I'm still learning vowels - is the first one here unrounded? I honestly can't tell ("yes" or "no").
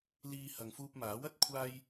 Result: yes